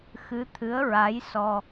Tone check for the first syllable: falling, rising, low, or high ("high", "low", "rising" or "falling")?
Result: rising